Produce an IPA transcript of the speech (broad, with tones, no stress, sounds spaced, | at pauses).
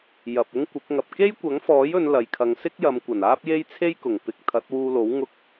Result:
j ɐ˨ p̚ ʊ˥ ŋ kʷ ɪ˨˥ k̚ ŋ ɐ˨ p̚ k e˥ j kʷ ɐ˨˥ ŋ f ɔː˨˥ j ɵ˨˧ n l ɐ˨ j kʰ ɐ˨˧ ŋ s ɪ˥ k̚ j ɐ˨˧ m kʷ ɐ˨˩ n aː˥ p̚ j e˥ j t͡sʰ e˥ j k ʊ˨˩ ŋ p ɪ˧ k̚ t̪ʰ ɐ˨˥ t̚ w uː˧ l o˨˥ w ŋ ʊ˧ k̚